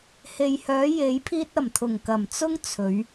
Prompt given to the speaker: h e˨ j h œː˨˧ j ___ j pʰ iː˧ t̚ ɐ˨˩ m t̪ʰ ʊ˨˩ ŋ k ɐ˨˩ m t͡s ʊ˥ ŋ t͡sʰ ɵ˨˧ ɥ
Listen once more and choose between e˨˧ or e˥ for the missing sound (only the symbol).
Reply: e˨˧